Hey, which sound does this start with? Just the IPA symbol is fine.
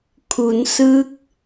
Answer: kʰ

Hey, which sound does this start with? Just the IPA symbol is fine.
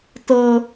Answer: t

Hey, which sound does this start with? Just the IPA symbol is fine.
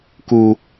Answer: k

